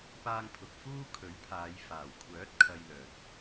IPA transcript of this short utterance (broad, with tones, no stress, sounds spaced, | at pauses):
p aː˧ ŋ pʰ ʊ˨ k̚ f uː˥ kʰ ɵ˨˥ ɥ pʰ aː˨˧ j f aː˨˩ w kʷʰ œː˨˥ t̚ kʰ ɐ˧ j l œː˨ t̚